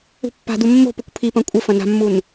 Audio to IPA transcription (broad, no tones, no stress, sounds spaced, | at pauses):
ṳ pː a̤ d u mː o̤ p u kʷ pʰ i p ɐ̃ kʷʼ ɘ f ɐ̃ n a̤ mː u n